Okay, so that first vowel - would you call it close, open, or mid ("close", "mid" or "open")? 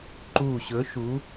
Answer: close